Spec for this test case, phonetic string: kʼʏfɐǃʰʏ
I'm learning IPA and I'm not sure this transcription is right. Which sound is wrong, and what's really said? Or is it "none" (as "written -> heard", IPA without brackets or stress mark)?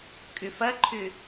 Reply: none